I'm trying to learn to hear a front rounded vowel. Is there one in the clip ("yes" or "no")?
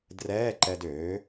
yes